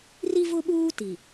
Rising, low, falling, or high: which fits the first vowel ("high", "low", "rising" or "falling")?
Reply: high